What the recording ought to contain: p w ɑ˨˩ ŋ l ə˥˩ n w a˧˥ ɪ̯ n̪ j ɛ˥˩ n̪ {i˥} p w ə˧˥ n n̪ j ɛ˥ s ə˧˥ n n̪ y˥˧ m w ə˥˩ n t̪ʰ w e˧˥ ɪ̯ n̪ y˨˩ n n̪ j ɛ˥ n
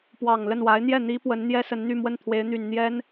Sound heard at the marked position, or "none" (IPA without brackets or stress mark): i˥